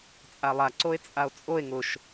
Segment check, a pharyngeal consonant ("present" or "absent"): absent